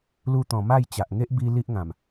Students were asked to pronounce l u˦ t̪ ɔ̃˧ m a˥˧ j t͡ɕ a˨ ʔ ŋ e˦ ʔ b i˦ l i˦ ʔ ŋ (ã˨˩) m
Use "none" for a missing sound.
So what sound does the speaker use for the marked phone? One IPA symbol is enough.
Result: ã˨˩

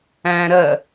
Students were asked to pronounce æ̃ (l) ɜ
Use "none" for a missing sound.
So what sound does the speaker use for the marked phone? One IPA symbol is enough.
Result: ɾ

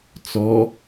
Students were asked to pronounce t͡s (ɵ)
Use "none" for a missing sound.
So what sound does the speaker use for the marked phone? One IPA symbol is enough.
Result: ɔ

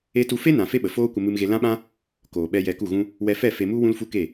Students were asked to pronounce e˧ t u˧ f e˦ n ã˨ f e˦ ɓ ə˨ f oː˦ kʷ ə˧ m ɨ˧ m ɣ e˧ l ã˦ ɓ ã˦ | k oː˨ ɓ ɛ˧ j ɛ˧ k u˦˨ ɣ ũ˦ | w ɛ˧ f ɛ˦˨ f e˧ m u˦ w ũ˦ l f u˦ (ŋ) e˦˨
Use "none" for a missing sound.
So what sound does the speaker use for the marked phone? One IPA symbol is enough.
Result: k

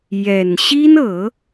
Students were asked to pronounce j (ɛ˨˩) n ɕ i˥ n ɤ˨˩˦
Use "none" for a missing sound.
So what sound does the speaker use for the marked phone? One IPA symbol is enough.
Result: ɛ˨˩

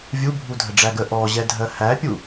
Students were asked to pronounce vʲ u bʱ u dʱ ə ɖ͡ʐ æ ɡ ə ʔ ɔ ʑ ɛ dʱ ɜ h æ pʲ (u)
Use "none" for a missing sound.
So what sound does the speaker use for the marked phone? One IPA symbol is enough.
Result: u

